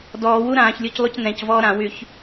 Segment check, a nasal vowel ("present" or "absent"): present